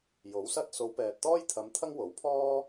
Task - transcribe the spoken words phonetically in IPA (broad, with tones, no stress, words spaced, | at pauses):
jo˨˥wsɐ˥t̚ so˨˧wpɛː˨t̚t̪ɔː˥jt̪ʰɐ˨˧m t̪ʰɐ˥ŋwo˨˥wpʰɔː˥